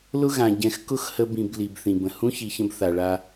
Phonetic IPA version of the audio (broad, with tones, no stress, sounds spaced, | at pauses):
l ʊ˥ ɣ ã˩ ɟ ɛ̃˨ x k ʊ˥ x h ə˦ b ĩ˨ b l i˩ b θ ĩ˩ b ə̃˩ h ũ˥ ç i˨ ç ə̃˦ b θ a˩ ɭ a˦